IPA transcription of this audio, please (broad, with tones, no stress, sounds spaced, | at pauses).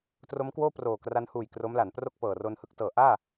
t r o˦˥ m k w oː˥˩ p r oː˨˩ k r a˧ n h uː˨˩ j k r o˦˥ m l a˩˦ n p r o˥˩ k̚ p ɤː˨˩ r o˧ n h ɯ˦˥ k̚ t ɤː˩˦ ʔ aː˥˩